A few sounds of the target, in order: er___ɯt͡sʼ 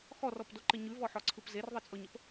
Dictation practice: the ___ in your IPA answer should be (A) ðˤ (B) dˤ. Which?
A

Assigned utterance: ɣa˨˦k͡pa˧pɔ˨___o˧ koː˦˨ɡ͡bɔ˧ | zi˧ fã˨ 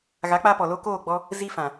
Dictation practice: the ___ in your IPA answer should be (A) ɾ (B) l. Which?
B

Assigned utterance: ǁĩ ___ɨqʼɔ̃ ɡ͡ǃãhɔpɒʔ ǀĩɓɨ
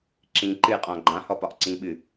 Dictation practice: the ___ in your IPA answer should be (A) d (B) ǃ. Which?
B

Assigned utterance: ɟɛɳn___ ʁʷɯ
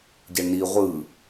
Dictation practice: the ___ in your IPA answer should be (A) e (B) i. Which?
B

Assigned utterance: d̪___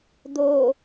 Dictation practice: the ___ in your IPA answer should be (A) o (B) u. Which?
A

